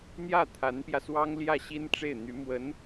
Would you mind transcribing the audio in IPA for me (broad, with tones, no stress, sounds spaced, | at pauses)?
n̪ j ä˥˩ t̪ʰ a˧˥ n p j ä˧ s w ɑ˥ ŋ l j ä˥˩ ɕ i˥ n ʈ͡ʂ e˥˩ ɪ̯ n̪ y˧˥ m w ə˧˥ n